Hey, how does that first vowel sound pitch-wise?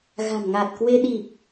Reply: low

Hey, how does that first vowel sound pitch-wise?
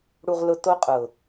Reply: low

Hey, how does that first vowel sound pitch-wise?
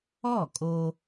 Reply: falling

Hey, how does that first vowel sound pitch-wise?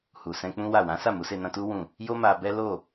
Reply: low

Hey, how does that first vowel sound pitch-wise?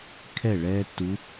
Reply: falling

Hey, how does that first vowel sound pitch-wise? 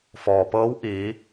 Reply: low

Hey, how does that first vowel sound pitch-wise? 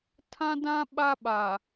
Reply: high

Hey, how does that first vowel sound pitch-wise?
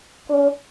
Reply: high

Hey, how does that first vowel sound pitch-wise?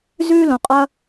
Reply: high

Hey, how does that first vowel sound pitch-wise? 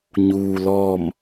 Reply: low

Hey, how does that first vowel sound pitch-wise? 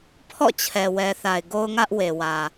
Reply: falling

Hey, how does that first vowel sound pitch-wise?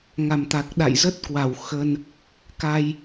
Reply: low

